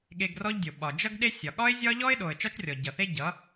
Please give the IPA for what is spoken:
ɠ e˧ ɡ r ɔ˦ ʎ dʲ o˨ ɓ ɒ˨ d͡ʒ ʌ˧ ɡ ɗ e˧ sʲ ɒ˨ ɠ ɒ˦ ɪ̯ zʲ ɒ˦ ʎ ɔ˦ ɪ̯ ɗ o˨ ə̯ t͡ʃ ɒ˦ t͡ʃ rʲ ɔ˨ ɟ ʌ˨ θ e˦ ɟ ʌ˨˦

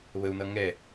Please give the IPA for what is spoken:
β ə u̯ n ʌ ŋ ɛ

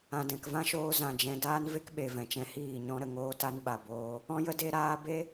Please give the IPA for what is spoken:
ã˨ d ɛ̃˨ k v ã˦ ʃ oː˧ z ã˨ d͡ʒ ɛ̃˨ d aː˦ n v e˦ k ɓ e˨ v ɛ̃˨ t͡ʃ ɛ̃˧ h iː˦˨ ɲ ɔ̃˧ ɾ ə˨ ŋ oː˧ t a˧ n ɓ a˨ b oː˧ | ɔ̃˦ j ə˦ d e˧ ɾ aː˧ b e˦

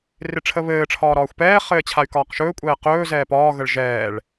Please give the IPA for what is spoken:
r ɪ ʈ͡ʂʰ ə β ɘː ʈ͡ʂʰ ɒː ɾ ɒː xʷ p ɛː χ ɘː t͡ɕʰ a y̯ k ɒː q ʃ ɵː kʷʼ ɛː q ɵː z ɛː p ɒː ɣ ə ɭ ʒ ɛː ɭ

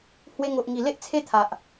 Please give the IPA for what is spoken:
h w e˧ ŋ o˨ ʔ ŋ i˨˩ l e˦ ʔ t͡sʰ e˦ t̪ʰ a˨ ʔ

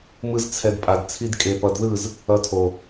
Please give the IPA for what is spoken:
m ɯ˦ z t͡sʰ ɛ˧ d pʼ a˨ d t͡sʰ i˧ d kʼ e˨ p ʌ˨ d ð ɯ˦˨ z | ʌ˧ tʰ o˨

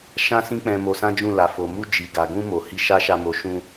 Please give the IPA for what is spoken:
ʃ ã˦ s ĩ˦ k͡p ɛ̃˧ m o˧ s ã˦ d͡ʒ ũ˦˨ l a˨ f o˨ m u˧ d͡ʒ i˨ ɡ a˨ ɡ ũ˧ m o˨ h i˧ ʃ a˦ ʃ a˧ m o˧ ʃ ũ˧

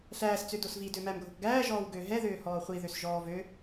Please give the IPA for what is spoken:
ɬ æː s t͡s ø d o s v i d ø m æ m ɡʱ o k ɡ æː ʒ ɔː w ɡ ø ɦ ɛ ð øː h ɔː χʷ i ð ø s ʒ ɔː v ø

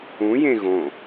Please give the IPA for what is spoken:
ũ j ẽ ɣ õ

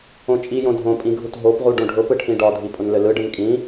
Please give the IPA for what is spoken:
õ t͡ʃʼ i j õ dʱ õ pʼ ĩ ɡʱ u t ɦ o p ʁ u ɖ õ ɖʱ ʊ p ɯ ʈʰ ĩ ɖ ɒ dʱ i pʼ ʊ n l ɘ l ɯ ɖ ɘ n kʼ ĩ

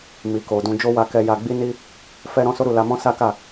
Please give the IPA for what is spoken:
m i˨ k o˨ d ũ˧ d͡ʒ o˦ w a˧ k ɛ˧ j a˧ ɡ͡b i˦ n i˦ | f ɛ˦ ɾ ɔ̃˦ s o˦ ɾ u˦˨ l a˧ m ɔ̃˦ s a˦ k a˦˨

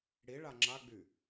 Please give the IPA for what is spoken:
ɽ i ɭ a ŋ͡ǁ a ɡ͡b y

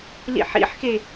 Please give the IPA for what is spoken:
l ḭ ħ ḭ ħ x e

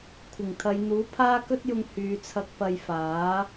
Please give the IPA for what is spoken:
kʷʰ ɪ˨˩ ŋ t̪ʰ ɐ˨˧ j n̪ uː˨˥ pʰ aː˥ k ɵ˥ t̚ j ʊ˧ ŋ h yː˨˧ t͡sʰ ɐ˧ k̚ p ɐ˧ j f aː˨˥

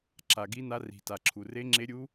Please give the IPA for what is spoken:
ǁ a˩ ɡ i˧˥ n a˧˥ r i̤˩ t a˩ ǁʰ u˩ r e˧˥ ŋ͡ǁ e˧˥ ɾʲ u˧˥

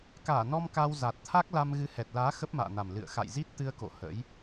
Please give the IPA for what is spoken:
k aː˧˩ n ɔ˧ m k a˧ w z a˨˩ t̚ t̪ʰ a˦˥ k̚ l a˧ m ɣ ɨ˨˦ h ɛ˨˩ t̚ l aː˨˦ x ə˦˥ p̚ m a̰ː˧˨ n a˨˩ m l ɨ̰˧˨ ə̯ x a̰˧˨ j z i˦˥ t̚ t̪ ɨ˧ ə̯ k o̰˧˨ h ə̰˧˥ j

